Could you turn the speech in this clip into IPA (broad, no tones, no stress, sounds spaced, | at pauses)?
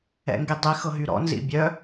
ɛ̰ ŋ ɡ i dˤ i x ɤ ɦ y ɾ ɔ̰ n z ḭ bʲ œ